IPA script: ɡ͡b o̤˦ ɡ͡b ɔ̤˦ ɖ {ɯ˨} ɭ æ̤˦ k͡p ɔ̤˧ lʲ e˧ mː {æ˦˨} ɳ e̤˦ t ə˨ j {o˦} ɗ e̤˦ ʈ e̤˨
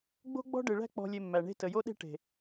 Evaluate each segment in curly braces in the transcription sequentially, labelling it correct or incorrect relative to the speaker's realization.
correct, incorrect, correct

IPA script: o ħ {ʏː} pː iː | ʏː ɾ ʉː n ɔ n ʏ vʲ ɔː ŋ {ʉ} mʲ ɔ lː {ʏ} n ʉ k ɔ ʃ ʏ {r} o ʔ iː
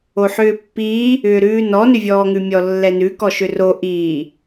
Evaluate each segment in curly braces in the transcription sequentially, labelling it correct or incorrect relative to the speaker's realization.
correct, correct, incorrect, correct

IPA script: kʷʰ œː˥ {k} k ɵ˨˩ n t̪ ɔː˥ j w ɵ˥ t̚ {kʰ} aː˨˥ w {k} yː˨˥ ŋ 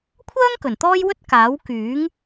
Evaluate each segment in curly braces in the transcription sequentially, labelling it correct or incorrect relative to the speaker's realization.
incorrect, incorrect, correct

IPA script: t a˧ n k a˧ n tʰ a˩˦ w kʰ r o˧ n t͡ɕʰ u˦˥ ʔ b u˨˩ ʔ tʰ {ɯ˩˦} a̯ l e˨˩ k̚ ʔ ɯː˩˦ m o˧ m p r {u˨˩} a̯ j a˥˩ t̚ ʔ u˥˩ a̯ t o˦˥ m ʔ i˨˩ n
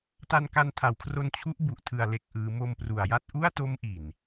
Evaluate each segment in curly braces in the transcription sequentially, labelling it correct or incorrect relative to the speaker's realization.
incorrect, correct

